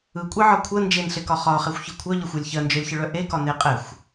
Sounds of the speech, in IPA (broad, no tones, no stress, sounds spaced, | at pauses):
ɯ kʷʼ e ʕ ɒ kʷʰ ə n d͡ʒ e n ɬ e k ɒ χ ɒ χ ɛ xʷ ç ɯ kʷʰ œ ʎ ə xʷ ɜ lʲ ç ɜ n d͡ʒ œ lʲ ç ɯ ɭ œ ʔ e k ɒ n e qʼ ɛ xʷ